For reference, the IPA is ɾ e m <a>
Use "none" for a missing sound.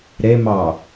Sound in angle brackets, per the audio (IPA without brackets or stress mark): ɑ